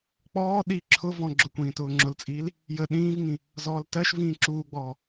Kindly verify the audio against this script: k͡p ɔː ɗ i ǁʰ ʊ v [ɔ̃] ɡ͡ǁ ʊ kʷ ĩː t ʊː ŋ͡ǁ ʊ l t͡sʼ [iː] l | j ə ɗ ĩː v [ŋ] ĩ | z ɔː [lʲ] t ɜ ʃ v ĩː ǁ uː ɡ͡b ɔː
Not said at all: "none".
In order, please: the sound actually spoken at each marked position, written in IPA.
ɔ̃, iː, ŋ, l

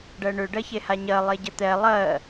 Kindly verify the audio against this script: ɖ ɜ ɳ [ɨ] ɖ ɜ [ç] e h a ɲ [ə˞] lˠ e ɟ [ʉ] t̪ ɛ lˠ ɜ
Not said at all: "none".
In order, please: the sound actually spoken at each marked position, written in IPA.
ʏ, ç, ɜ, ə

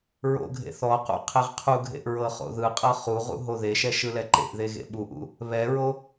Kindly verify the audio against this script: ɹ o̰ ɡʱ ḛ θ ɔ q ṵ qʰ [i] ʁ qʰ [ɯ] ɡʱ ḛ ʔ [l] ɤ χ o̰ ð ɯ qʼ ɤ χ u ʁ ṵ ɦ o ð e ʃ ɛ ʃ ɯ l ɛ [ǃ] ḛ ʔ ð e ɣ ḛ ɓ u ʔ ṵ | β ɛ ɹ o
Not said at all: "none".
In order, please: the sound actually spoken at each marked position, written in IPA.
e, u, ɹ, ǃ

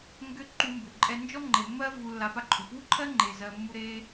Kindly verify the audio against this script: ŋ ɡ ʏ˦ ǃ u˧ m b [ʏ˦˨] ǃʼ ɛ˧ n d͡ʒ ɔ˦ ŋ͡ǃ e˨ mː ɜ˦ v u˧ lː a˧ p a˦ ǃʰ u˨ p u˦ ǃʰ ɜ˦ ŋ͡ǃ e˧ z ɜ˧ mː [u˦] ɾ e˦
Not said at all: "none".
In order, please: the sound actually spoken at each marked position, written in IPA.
ʏ˨, u˦

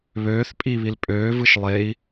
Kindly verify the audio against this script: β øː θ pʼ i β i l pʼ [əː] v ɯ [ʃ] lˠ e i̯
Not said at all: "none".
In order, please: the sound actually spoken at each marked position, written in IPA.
øː, ʃ

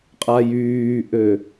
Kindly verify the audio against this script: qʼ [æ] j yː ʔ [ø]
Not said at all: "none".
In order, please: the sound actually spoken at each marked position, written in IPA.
a, ø

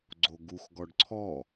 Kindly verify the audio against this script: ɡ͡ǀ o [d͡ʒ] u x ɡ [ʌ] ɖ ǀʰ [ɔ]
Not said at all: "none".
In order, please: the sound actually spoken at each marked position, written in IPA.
ɡ, ɔ, ɔ

